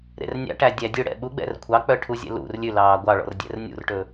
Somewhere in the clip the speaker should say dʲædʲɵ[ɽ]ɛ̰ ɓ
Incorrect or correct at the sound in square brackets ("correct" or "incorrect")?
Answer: correct